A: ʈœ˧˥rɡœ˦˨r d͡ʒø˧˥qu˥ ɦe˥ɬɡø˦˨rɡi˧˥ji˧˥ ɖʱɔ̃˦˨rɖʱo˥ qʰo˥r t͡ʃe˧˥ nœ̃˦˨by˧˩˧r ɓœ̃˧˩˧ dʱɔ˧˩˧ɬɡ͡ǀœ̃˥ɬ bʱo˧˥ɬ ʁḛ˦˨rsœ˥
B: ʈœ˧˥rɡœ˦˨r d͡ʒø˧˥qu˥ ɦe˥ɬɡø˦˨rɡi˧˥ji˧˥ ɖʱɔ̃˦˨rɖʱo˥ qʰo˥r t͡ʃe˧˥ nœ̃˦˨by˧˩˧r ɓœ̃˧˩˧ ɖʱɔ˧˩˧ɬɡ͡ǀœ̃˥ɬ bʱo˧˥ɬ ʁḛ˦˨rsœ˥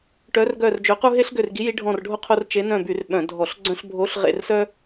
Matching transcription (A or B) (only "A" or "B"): A